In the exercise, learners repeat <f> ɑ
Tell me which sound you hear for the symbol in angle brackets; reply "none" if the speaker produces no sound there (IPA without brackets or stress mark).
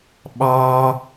ɓ